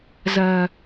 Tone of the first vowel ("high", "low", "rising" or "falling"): low